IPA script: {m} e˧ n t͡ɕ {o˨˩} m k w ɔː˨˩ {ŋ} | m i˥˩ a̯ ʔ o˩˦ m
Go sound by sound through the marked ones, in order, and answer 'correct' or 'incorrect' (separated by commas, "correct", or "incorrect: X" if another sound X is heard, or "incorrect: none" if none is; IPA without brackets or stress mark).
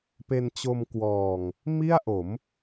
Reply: incorrect: p, incorrect: o˧, correct